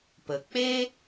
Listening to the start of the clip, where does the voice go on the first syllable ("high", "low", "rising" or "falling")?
low